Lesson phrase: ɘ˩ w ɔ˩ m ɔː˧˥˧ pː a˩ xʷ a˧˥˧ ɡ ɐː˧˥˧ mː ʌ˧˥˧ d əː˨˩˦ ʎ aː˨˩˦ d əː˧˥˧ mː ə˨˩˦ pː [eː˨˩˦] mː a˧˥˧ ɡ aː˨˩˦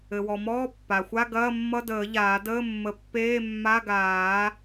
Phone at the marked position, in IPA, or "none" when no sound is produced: eː˧˥˧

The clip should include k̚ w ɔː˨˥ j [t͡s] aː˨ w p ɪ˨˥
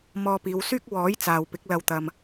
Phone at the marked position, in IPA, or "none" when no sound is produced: t͡s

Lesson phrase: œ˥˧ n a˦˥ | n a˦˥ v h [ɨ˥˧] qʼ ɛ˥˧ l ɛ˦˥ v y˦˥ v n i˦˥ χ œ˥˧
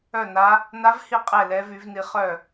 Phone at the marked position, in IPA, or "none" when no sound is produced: i˥˧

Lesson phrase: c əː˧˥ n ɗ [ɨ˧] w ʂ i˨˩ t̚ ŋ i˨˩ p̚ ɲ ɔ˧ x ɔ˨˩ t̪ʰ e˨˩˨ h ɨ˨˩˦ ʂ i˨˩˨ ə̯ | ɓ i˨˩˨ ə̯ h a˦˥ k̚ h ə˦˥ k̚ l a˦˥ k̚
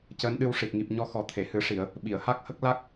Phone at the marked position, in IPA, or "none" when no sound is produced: ɨ˧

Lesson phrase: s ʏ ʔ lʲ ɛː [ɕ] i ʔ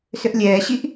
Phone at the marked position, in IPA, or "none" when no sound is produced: ɕ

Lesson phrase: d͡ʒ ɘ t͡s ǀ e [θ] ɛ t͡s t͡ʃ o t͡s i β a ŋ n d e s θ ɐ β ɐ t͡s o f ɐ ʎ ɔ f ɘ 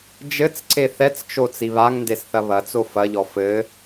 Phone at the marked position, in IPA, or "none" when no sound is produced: θ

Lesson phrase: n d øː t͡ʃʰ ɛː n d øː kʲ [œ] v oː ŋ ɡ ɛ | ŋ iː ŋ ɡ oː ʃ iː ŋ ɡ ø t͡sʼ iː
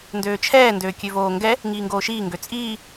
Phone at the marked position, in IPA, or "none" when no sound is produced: ø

